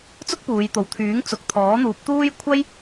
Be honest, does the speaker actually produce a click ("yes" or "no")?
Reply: no